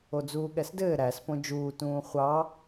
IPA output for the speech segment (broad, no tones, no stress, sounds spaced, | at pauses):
o d͡z uː ɠ ɛ s d ɘː ɾ æ s p õ d͡ʒ uː t ũː χʷ ɑ